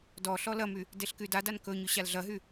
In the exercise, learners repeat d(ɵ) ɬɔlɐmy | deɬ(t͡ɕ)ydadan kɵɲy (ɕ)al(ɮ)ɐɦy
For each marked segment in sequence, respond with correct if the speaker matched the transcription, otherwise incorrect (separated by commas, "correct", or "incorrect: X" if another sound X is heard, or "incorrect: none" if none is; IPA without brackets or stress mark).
incorrect: ɔ, incorrect: k, correct, correct